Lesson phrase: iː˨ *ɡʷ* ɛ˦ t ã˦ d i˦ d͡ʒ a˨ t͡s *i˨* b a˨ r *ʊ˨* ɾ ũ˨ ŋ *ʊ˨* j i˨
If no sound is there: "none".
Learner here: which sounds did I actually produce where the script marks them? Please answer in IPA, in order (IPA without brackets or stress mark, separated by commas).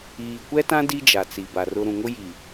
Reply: kʷ, i˨, ʊ˦, ʊ˦